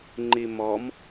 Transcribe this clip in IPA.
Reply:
ŋ͡ǃ i m ɔ m

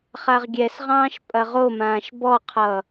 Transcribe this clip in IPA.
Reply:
χ a ʁ ɡʲ ɛ s ʁ ɑ̃ː ʃ pʼ ɐ ʁ o m ãː ʃ b ɔ qʰ ʌ

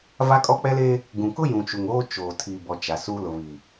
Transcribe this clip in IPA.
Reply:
v a˦ kʼ ɔ˦ k͡p ɛ˦ l eː˦ | ɡ ũ˨ k ʊ˦ j ũ˨ t͡ʃ u˨ ŋ oː˦ t͡ʃ oː˨ tʰ i˨ b ɔ˨ t͡ʃ a˨ s u˦ l ʊ˨ β i˨

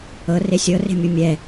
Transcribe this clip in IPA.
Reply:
ɤ r e sʲ ɤ r e̤ mʲ u mʲ ɛ

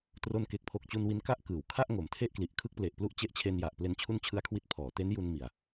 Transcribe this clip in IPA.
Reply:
t r o˧ n k e˨˩ k̚ pʰ o˨˩ k̚ t͡ɕ u˧ n w i˧ n k a˥˩ ʔ k ɯː˩˦ w kʰ a˥˩ ʔ ŋ o˩˦ m tʰ e˥˩ ʔ k l i˨˩ ʔ kʰ ɯ˥˩ k̚ p l e˨˩ ʔ p l u˥˩ ʔ t͡ɕ e˦˥ ʔ t͡ɕʰ e˧ n j a˨˩ ʔ p l e˧ n t͡ɕʰ u˦˥ n t͡ɕʰ ɯ˧ a̯ kʰ w i˥˩ t̚ pʰ ɔː˩˦ t e˦˥ n j u˧ n m i˨˩ a̯

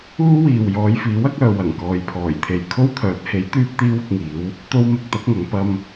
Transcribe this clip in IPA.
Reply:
uː˥ w iː˨ w j ɔː˨˧ j f iː˨˥ w ɐ˨˥ k̚ œː˨ w ɐ˨˩ ŋ k ɔː˨ j pʰ ɔː˨˩ j t̪ʰ e˨ j kʰ o˥ w t̪ʰ œː˨˥ t̚ h e˨˥ j t̪ yː˥ p̚ t̪ iː˥ w ʊ˧ k̚ ŋ iː˨˥ w | t̪ o˧ w m ɪ˧ k̚ t̪ ɐ˨˥ k̚ ŋ ɐ˨˧ ŋ p ɐ˧ m

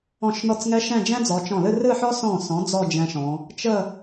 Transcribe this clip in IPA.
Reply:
ɔ̃˧˩ ʃ n ɔ˧˩ t͡s ŋ ɛ˧ ʃ ɛ̃˥˧ d͡ʒ ɛ̃˥ d͡z ɔ˩˧ t͡ʃ ɔ̃˧˩ l ɨ˥˧ r ɨ˥˧ ħ ɔ˥ s ɔ̃˧˩ s ɔ̃˩˧ d͡z ɔ˥˧ d͡ʒ ɛ̃˧ ʃ ɔ̃˩˧ | t͡ʃ ə˥˧

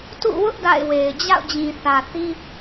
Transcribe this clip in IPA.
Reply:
t ṵ˦˨ w ʊ˦ ʔ d a̰˦˨ ɪ̯ w e˨ ɪ̯ d͡ʑ a̰˦˨ ʊ̯ d͡ʑ ĩ˨ θ ä˨ θ i˦

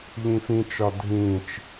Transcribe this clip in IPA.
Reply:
ʎ ĩ f ĩ t͡ʃ ɒ dʱ ĩ t͡ʃ

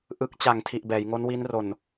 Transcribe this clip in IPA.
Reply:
ʔ ɯ˦˥ k̚ t͡ɕ a˨˩ ŋ tʰ i˨˩ ʔ b ɛː˩˦ j ŋ o˦˥ n w i˦˥ n r o˨˩ n

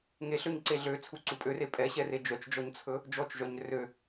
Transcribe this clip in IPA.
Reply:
ŋ e ɬ ø ɲ ǀ e ɮ ø t͡sʰ u ǀ u pʼ ø r e pʼ ɛ ɕ ɛ r e d͡ʒ œ t͡ʃ d͡ʒ ɔ ɲ t͡sʰ ɵ | d͡ʒ ɔ t͡ʃ ʒ œ ɲ r ø

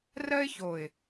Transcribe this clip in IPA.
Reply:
r ɜ˥ ɪ̯ ç o˨˩ ɪ̯

